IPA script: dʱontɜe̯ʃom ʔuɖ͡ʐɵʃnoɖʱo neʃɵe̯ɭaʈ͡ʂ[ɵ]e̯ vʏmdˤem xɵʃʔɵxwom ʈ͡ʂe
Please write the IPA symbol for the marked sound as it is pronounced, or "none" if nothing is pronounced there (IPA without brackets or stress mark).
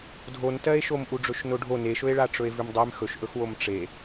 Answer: ɵ